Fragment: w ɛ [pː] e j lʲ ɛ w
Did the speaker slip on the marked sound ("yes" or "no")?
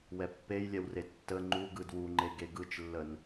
no